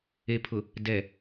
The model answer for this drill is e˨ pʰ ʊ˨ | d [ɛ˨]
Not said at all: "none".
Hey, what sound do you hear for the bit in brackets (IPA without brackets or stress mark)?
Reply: ɛ˨